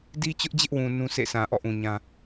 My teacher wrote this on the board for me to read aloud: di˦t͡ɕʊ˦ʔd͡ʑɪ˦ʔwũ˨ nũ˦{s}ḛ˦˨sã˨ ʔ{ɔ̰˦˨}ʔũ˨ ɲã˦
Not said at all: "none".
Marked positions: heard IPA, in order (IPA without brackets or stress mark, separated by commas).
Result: s, ɔ̰˦˨